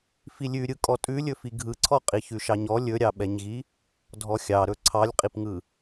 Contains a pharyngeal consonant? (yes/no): no